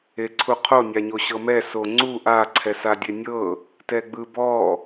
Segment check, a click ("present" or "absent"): present